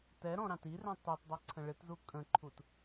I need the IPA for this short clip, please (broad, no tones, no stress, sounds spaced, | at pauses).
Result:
t ɛ ɾ ɔ̃ ɾ ɑ̃ t i r ɛ̃ tˤ u t dˤ ʌ ǀʰ ə̃ ɭ ɪ t z u kʼ ə̃ ǃʰ u t